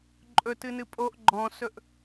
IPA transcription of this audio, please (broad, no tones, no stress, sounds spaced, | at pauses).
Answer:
ǃʼ ɵ t ɨ n ɨ pʼ o ʔ ɡ͡ǃ ɔ̃ s ɵ ʔ